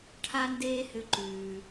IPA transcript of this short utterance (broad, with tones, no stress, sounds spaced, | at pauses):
ʈʰ a˦ n d eː˦ h ʏ˧ ǃ ʉː˨